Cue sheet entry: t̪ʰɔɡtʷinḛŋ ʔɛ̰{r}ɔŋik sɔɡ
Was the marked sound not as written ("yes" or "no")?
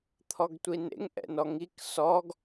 yes